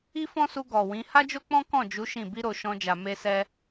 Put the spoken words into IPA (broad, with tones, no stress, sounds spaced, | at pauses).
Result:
i˦ f ɔ̃˦ s u˧ ɡ ɔ˨ w ĩ˨˦ h a˦ d͡ʒ o˦ k͡p ɔ̃˦ k ɔ̃˦˨ d͡ʒ u˨˦ ʃ ĩ˦˨ b i˧ ɾ o˨ ʃ ɔ̃˧ d͡ʒ a˨ m e˧ s ɛ˧